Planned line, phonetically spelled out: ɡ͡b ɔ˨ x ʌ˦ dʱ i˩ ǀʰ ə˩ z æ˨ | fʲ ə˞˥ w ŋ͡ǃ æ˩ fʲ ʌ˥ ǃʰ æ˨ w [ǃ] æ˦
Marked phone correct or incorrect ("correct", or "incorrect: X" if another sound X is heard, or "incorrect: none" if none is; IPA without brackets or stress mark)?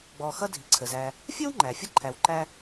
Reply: correct